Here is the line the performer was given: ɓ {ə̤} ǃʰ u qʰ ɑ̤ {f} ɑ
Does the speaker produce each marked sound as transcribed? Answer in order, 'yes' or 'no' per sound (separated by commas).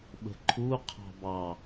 yes, no